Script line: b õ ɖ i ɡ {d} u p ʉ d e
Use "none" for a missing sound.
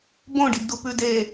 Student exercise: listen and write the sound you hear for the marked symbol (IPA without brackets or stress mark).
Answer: d